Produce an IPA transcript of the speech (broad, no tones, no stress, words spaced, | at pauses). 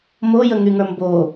mo jəŋyŋə˞mbo